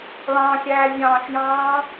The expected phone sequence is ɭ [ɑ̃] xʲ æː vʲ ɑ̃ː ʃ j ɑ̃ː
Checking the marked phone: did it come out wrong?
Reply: no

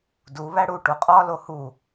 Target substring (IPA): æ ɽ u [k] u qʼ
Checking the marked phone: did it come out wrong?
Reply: yes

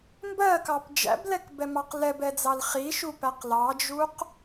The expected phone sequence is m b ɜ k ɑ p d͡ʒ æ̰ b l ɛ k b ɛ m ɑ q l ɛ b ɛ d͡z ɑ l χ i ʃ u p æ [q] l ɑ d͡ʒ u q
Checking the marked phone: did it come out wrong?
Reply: no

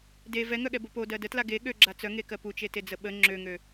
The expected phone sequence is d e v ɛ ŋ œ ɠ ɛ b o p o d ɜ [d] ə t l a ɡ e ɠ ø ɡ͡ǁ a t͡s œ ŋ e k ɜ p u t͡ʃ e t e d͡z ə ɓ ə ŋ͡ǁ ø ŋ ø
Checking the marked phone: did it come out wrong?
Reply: no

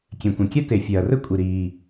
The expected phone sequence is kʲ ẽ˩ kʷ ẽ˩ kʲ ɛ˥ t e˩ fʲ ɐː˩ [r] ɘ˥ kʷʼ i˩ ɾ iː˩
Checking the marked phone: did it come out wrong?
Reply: no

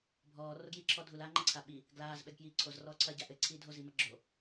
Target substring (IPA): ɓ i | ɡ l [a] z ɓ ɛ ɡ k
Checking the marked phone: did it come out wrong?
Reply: yes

